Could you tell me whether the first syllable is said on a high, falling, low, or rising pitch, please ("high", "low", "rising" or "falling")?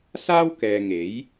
high